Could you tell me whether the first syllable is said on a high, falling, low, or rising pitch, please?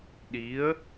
rising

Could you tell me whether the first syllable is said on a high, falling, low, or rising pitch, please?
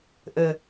low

